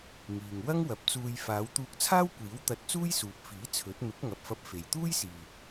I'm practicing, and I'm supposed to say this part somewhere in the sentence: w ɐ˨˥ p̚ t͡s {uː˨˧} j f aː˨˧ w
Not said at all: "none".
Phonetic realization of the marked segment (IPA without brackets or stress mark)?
uː˧